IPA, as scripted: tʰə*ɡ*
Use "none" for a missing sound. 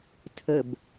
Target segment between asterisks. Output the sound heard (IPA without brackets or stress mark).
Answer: b